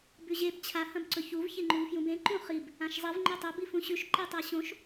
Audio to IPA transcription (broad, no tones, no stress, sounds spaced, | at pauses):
b ʉ ʑ e b t͡ɕʰ a h ɐ̃ b ǀ ɵ ç u v ç e ŋ͡ǃ u v f j ũ b ẽ ǃ ũ χ i b | ã ʃ zˤ e v ŋ͡ǃ o tˤ ɐ b i f ũ ɕ ʉ ʃ ǃ e tˤ a ɕ õ ʃ